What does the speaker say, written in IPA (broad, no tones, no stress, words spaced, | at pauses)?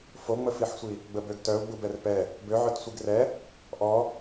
foŋ͡məfiħsʷi | ɡ͡bəbøɡtœu̯ ɡ͡bubɛrpɛ | bøʕœt sʷiɡrɛ | ʔɔ